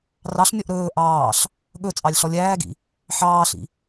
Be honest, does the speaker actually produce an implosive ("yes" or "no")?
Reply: yes